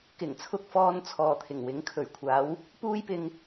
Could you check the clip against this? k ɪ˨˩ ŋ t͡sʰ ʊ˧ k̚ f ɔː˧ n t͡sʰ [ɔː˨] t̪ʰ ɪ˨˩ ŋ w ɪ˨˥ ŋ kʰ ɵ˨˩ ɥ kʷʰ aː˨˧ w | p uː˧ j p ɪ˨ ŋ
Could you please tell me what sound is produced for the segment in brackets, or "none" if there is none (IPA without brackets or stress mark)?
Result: ɔː˨